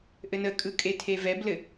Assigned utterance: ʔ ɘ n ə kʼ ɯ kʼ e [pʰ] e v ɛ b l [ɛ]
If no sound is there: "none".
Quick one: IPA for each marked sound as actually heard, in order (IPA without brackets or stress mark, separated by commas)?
tʰ, ɘ